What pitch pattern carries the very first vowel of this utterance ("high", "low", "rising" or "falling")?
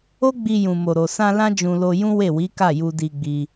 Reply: high